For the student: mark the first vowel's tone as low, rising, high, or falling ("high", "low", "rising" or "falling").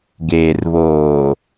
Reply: low